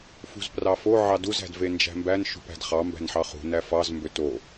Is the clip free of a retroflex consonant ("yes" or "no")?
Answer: yes